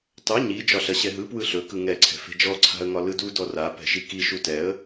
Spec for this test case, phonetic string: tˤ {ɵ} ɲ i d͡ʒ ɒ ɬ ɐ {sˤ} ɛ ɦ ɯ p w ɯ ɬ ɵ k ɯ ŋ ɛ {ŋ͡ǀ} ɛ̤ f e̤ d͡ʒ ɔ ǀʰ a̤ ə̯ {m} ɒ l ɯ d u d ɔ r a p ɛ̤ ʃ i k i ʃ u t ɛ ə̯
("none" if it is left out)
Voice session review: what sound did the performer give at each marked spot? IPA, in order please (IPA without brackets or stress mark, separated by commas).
ɵ, ɕ, ǀʰ, ŋ